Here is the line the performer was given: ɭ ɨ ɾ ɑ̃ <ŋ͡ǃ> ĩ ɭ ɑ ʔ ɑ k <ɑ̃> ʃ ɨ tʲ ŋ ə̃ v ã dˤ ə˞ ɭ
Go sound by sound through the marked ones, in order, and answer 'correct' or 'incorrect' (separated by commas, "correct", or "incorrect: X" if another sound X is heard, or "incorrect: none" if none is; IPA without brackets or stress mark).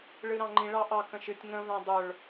correct, incorrect: ə̃